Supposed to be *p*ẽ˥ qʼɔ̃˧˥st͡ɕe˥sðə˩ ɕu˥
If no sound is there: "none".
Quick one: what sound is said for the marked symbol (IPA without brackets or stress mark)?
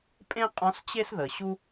pʼ